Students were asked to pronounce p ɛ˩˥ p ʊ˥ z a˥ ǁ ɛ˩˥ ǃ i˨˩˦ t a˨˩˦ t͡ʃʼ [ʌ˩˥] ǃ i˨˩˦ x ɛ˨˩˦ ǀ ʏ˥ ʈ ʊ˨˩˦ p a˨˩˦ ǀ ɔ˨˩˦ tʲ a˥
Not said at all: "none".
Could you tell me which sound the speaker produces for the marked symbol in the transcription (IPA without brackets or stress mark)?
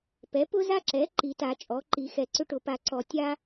ɔ˩˥